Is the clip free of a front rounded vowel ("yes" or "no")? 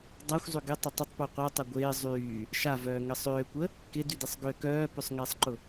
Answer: no